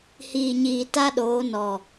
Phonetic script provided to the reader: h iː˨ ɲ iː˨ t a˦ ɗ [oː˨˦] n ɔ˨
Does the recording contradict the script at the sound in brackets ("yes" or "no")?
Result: no